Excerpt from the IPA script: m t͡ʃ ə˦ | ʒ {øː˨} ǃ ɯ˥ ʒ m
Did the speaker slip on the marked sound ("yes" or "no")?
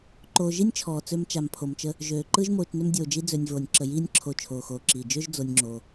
yes